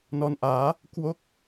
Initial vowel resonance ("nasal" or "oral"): oral